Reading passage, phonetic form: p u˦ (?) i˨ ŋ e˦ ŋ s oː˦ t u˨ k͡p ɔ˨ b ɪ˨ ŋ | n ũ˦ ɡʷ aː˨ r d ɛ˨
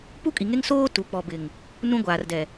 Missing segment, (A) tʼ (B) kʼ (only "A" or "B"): B